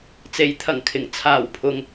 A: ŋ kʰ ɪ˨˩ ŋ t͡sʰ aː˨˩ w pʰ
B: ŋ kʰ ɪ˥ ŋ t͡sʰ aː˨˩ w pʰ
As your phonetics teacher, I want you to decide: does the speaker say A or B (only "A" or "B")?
A